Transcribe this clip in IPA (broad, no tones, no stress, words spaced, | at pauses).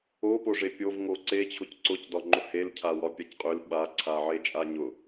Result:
opoʐe pʲovŋo ǀet͡ɕʰʊc ǀʊc dɒŋ͡ǃʊhelcʰa wɒpʲacqʼøl ɓaǀʰa ʕet͡ʃʼaɲʊ